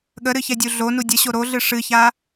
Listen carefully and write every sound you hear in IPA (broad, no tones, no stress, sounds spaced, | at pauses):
ɠ ə ɾ ɨ ç ɛ dʲ u ɮ o n u dʲ ə ɕ o ɾ o ɮ ɨ ʂ ɨ ç a